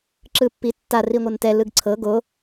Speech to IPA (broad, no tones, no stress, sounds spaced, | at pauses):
ǁ ɯ pː i tː a r i ŋʷ ɤ n t ɛ l ɯ ɡ ǀʰ ɤ ɡ o